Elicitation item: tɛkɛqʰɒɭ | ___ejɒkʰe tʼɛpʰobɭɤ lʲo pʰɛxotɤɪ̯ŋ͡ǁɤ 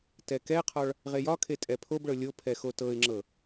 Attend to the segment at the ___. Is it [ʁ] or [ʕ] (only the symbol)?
ʁ